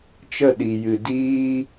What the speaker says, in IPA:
t͡ʃə˦˨ɗi˨jɨ˨ diː˦

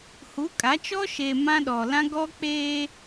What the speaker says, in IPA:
hu˨˦kʼa˨˦t͡ʃɔ˦ ʃe˨ mã˦ ɗɔ˨lã˦ ɡɔ˦k͡peː˦

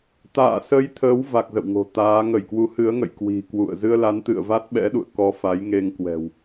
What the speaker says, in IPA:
t̪a̰ː˧˨ sə˨˦j t̪ʰəː˨˦wva˨˩k̚ zə̰˧˨wŋo̤˨˩ t̪aː˨˦ ŋə˧˩jkwu˨˦hɨ˨˦ə̯ŋə̰˧˨j kwi̤˨˩ kwṵ˧˨ə̯ zɨ˧ə̯la˨˦nt̪ɨ̰˧˨ə̯va˦˥t̚ ɓɛ̰˧˥ɗṵ˧˨ə̯ kɔ˧fa˨˦jŋe˧ŋkwɛ̤˨˩w

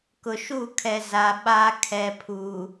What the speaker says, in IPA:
kʊ˨ʃu˦˨kʰɛ˨ za˨ ɓaː˦ kʰɛ˨pʰuː˨

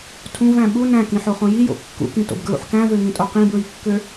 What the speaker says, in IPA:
tʰũvæ̃ ɓu næ̃kĩħoχõ jijo̰ kːṵkĩto̰bɡɹṵħ kæ̃vøŋĩtʼo qĩbɹikːø

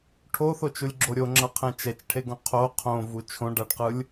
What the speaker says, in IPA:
ʈʰoθot͡ʃulʲɡ͡ǁo ɾʲoŋ͡ǁʌqʰɛ̃ t͡ʃɛt͡ʃʈʰeɡõ qʰo qʰõvu t͡ʃʰõɖaɖqɯlʲ

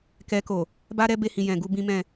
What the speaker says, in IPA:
kɛ˧ko˨ | ba˦ɾɛ˦be˧hĩ˨ jɛ̃˨ ɡu˧ bĩ˦mɛ̃˦˨

